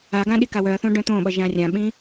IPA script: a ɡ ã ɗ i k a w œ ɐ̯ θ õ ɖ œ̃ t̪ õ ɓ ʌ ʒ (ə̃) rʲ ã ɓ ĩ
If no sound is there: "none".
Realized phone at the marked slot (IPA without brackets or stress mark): ã